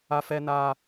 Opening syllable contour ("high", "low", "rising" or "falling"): high